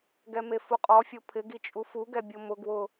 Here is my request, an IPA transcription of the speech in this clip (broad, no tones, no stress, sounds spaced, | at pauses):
ɡ ɛ m e f u qʼ ɔ fʲ o pʰ ɪ ɡ i t͡ʃʼ u f u ɡ ɛ bʲ o m ʊ ɡ w ʊ